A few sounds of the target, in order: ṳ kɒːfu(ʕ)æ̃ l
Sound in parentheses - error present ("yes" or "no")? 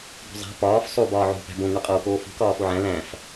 no